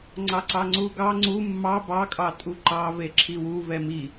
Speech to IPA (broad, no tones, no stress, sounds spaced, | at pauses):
ŋ͡ǀ ɑ ǀ ɑ ŋ͡ǀ u ɡ ɑ ŋ͡ǀ u mː ɑ b ɑ kʼ ɑ tʼ u ǃ ɑ v e ǁʰ i w u v ɛ m i